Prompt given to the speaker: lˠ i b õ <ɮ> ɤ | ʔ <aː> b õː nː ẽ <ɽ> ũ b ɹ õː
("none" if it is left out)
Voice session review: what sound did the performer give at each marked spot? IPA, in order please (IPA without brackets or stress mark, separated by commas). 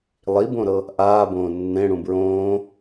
ɾ, aː, ɽ